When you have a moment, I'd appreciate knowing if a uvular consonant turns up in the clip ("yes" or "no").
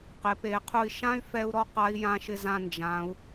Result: yes